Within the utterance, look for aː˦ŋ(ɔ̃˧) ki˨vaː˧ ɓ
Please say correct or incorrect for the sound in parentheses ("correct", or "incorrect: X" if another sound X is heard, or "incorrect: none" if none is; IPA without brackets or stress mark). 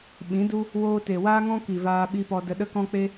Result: incorrect: ɔ̃˦